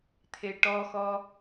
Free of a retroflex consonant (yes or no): no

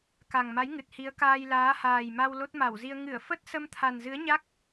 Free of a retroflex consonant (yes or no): yes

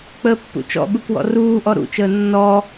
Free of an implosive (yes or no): no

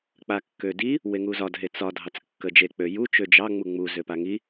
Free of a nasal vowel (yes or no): yes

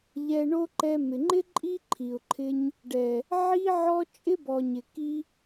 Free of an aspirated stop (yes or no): no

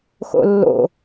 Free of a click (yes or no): yes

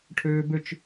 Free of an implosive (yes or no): yes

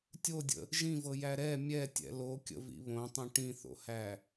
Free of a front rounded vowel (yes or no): yes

